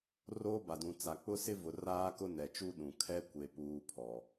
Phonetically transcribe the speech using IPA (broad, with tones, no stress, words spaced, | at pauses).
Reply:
roː˦ba˨dũ˨ t͡sa˨k͡pʊ˦sɪ˦ vʊ˨raː˦kʊ˦ nɛ˨t͡ʃu˦ ɗũ˨ kʰɛ˦kʷe˨ puː˦pʰɔ˨